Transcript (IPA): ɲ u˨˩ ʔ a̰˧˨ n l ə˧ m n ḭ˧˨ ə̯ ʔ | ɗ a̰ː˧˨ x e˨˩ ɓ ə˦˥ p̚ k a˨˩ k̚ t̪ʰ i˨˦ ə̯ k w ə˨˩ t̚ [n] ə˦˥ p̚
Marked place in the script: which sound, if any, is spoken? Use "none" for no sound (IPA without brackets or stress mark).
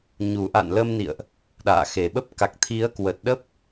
ɗ